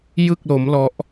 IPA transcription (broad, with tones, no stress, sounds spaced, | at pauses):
j ɯ˥˩ k̚ l o˦˥ m l ɔ˦˥ ʔ